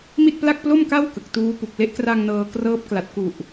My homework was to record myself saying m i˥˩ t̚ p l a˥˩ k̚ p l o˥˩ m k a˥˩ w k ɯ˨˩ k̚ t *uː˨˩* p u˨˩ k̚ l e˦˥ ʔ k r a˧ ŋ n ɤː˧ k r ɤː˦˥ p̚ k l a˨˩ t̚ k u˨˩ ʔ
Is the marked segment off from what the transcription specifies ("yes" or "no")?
yes